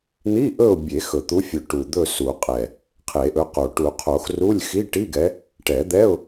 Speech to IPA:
n̪ i˧˥˧ ʔ ɵ˦˨ ʊ̯ bʲ e˨˩˦ x ɵ˨˩ t̪ u˨˦ fʲ ɵ˨˩ ʈ u˨˩ d̪ ɵ˦˨ s u˨˩˦ qʼ ɛ˨˩ | qʰ e˨˩˦ ʔ ɵ˨˦ q o˨˩ ʈ u˨˩˦ qʰ o˨˩˦ x r u˧˥˧ lʲ x i˧˥˧ ʈ i˧˥˧ ɡ ɛ˨˦ | ʈ ɛ˨˩˦ d̪ ɛ˧˥˧ ʊ̯

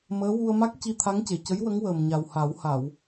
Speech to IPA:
m əː˧˥ w u˧ ə̯ m a˦˥ k̚ c i˧ t̪ʰ a˧˥ ŋ c e˨˩ c ə˧˥ j w ə˧˥ ŋ w əː˨˩ m ɲ a˨˩ w h a˨˩˦ w h a˨˩˨ w

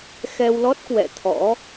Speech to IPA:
x ɛ˧ w l ɔ˦˥ t̚ k w ɛ̰˧˨ t̪ʰ ɔ̰˧˥

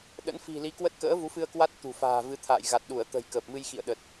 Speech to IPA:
ɗ ə̰˧˥ n f i̤˨˩ l i˨˦ k w ə˦˥ t̚ k ə̰ː˧˥ v u˨˦ f ɨ˧ ə̯ k w a˦˥ t̚ t̪ ṳ˨˩ f a̤ː˨˩ v ɨ˨˦ t̪ʰ a̰ː˧˨ j ɣ a˨˩ t̚ ɗ u˧˩ ə̯ t̪ ə̤˨˩ j k əː˨˩ p̚ m ɨ˧ j x ḭ˧˨ ə̯ ɗ ə˨˩ t̚

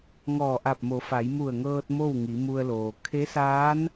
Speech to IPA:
ŋ ɔː˧˩ ʔ a˧˩ p̚ m o˩˧ f a˩˧ j m u˧˩ ə̯ ŋ ɤː˧ t̚ m o˥˨ w ŋ i˩˧ m u˧ ə̯ l oː˩ kʰ e˧˥ s aː˧˥ n

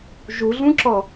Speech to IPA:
ʒ u ɮ ũ ǁ ɔ

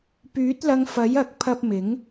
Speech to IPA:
p yː˨˥ t̚ l ɐ˨ ŋ f ɐ˨˥ j ɐ˨˥ k̚ pʰ ɐ˧ p̚ m ɪ˨˥ ŋ

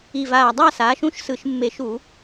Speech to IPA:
i˧˩ v aː˧˩ dˤ a˥˧ s aː˩˥ ʃ ũ˥˧ ʃ s ɯ˧˩˧ ʃ mː e˧˩˧ ʃ u˧˩˧

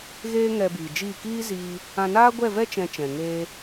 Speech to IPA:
ɣ eː˦ ŋ ɛ˧ b iː˨ d͡ʒ iː˦˨ k iː˦ z iː˧ | ã˧ n aː˦ ɡʷ ɛ˦˨ v ɛ˦ t͡ʃ ɛ̃˧ t͡ʃ ɛ̃˨ ŋ eː˧

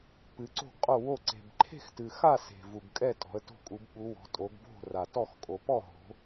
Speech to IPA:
p ɨ˨˦ ǀ o̤˥˨ ɡ qʼ o˥˨ w o˥˨ ǀ e̤˨ b ǃʰ e̤˥˨ x t ɨ˨ x a˥˨ s e̤˨ v u˨ ɡ kʼ ɛ˥˨ tʼ ɔ̤˨˦ ə̯ t o̤˥˨ kʼ u˨˦ b ɓ u˨˦ w ɔ̤˨˦ tʼ o˨˦ ɡ b o̤˥˨ r a˨ t ɔ˥˨ x kʼ o˨ p ɔ˥˨ ɦ o̤˨˦

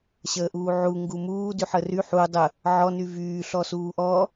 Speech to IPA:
ɕ əː ʔ uː ʕ u ŋ ɡ u m uː d y ħ ə r y ħ u dˤ ə | ʕ ɔ n y v yː ɬ ɔ s uː ʔ ɔ

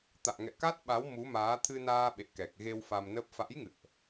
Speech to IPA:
t̪ a̰ː˧˨ ŋ ɛ̰˧˨ k a˦˥ t̚ ɓ a˨˦ w m u˨˦ m aː˨˦ t̪ʰ ɨ˧ n aː˧ ɓ ḛ˧˨ k ɛ˨˩ k̚ ɣ e˧ w f a˧ m n ə˦˥ p̚ f a̰˧˥ j ŋ ɨ̰˧˨ ə̯ ʔ

